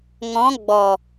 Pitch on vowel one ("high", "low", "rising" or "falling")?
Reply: rising